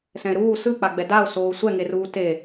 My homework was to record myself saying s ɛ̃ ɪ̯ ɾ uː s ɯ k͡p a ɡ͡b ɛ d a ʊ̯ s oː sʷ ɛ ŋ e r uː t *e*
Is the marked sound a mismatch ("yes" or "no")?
no